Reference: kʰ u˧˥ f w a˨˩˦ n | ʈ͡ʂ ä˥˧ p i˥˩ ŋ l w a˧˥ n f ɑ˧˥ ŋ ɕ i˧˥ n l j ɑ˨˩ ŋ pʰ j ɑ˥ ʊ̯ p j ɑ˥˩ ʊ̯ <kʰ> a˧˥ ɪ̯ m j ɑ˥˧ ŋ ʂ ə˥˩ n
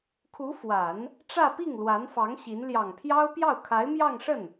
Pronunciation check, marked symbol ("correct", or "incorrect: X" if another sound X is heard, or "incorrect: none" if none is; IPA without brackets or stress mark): correct